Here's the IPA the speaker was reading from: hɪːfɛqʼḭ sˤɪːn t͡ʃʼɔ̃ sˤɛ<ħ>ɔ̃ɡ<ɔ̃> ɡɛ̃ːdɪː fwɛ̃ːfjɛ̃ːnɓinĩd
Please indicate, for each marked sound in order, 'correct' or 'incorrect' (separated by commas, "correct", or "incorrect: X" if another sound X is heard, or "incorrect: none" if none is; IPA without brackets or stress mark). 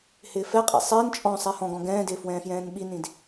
incorrect: h, correct